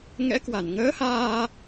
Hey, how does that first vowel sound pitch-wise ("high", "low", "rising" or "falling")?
rising